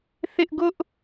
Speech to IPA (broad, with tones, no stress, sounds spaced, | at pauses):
θ ɪ˦ ʔ ɡ ʊ˦ ʔ